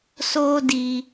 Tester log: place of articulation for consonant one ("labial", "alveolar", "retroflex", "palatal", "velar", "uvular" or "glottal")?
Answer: alveolar